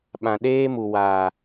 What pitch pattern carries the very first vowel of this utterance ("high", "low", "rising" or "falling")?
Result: low